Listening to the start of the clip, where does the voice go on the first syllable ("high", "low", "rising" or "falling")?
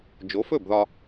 rising